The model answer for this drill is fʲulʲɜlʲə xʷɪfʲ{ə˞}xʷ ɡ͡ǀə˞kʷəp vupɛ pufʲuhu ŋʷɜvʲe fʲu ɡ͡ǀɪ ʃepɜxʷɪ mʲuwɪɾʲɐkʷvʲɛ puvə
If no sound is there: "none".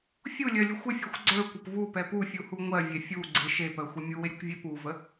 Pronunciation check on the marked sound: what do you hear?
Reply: ɜ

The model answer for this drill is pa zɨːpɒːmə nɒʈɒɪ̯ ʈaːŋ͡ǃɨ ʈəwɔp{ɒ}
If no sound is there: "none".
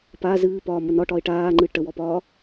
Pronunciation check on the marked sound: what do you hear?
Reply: ɒː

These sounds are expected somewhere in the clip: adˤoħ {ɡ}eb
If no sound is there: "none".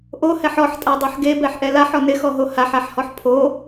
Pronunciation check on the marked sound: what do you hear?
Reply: ɡ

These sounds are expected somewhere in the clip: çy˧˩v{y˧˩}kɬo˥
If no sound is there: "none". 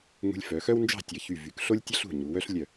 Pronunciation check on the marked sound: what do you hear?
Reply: y˩˧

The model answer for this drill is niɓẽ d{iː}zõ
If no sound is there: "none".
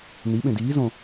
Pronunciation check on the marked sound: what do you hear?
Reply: iː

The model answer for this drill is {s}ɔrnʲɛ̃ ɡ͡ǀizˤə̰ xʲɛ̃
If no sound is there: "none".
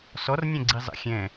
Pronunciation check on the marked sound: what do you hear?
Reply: s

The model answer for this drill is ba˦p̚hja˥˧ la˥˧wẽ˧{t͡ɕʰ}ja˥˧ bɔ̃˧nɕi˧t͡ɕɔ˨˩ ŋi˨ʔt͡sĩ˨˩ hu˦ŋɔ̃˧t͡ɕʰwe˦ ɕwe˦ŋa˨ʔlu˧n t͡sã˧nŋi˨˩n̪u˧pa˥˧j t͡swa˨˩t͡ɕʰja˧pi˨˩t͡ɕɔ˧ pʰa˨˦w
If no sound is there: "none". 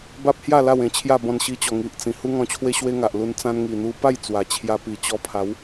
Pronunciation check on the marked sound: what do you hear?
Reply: t͡ɕʰ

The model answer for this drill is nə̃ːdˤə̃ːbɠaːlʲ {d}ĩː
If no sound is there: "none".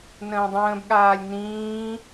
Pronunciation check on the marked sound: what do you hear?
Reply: n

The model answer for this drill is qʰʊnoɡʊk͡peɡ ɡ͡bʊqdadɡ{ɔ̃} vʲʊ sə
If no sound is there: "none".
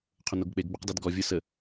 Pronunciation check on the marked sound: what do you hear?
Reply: ɔ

